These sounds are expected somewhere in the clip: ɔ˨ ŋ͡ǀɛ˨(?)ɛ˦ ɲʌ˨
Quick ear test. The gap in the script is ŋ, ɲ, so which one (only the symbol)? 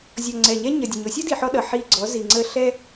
ɲ